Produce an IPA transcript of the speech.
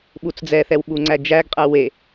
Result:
ɓ u t͡s d͡z ɛ θ ɛ w ɓ u ŋ͡ǀ æ d͡ʒ æ ɡ qʼ æ w e

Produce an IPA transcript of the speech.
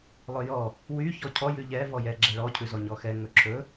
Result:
lˠ ɵ j ɔ | w y ç ɔ cʰ ɔ j ʉ ʎ ɛ v ɔ j ɛ ɡ͡ǁ ɛ ɭ ɔ cʰ ʉ z ɔ ɲ ɔ x ɛ ŋ ɵ ǁʰ ɵ

